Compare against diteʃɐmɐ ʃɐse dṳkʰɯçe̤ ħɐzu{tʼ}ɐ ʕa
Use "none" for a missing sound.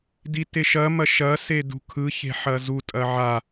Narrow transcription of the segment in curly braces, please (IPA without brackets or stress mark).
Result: tʼ